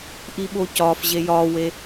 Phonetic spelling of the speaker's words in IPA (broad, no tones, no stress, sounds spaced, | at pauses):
ʔ i ɓ o c ɒ f ʑ e j ɒ w e